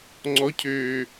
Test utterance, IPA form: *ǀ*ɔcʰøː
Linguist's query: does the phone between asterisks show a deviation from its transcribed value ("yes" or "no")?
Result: yes